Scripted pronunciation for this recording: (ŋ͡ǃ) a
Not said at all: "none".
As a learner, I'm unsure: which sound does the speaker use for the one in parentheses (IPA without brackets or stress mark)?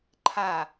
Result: ǃʰ